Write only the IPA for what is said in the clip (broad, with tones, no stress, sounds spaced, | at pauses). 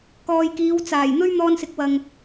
k ɔː˨ j k iː˨˧ w t͡s aː˨˩ j n̪ ɵ˥ ɥ n̪ ɔː˧ n s ɪ˨˥ k̚ w ɐ˨ ŋ